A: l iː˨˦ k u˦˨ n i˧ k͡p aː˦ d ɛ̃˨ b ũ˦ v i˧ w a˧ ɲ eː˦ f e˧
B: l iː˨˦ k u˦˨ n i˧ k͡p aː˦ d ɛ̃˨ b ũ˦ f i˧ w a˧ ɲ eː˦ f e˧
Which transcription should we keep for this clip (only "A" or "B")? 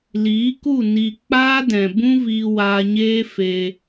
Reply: A